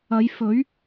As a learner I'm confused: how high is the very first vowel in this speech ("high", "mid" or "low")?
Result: low